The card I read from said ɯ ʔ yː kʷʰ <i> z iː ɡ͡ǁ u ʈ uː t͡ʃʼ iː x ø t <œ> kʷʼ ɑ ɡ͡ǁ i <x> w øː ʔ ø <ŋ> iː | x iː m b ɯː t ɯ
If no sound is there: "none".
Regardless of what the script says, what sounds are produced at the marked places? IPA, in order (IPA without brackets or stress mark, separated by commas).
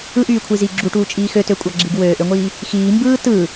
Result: i, ø, ɡ, ŋʷ